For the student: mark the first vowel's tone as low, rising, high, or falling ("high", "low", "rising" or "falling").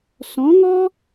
rising